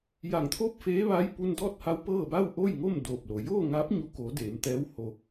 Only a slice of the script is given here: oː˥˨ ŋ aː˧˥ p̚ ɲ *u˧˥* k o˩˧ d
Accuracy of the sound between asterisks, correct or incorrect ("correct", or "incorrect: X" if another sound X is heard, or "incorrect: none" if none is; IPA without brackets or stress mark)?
incorrect: u˧˩